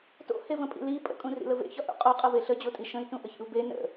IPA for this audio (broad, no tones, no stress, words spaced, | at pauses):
to̰hevə̃pʼḭ li pʼə̰kʼũrḭlə vḛçɒʔṵ qʼoqʼəve ɬəd͡ʑotʼi ʃə̃i̯tũʔəçḭu̯ be nə̰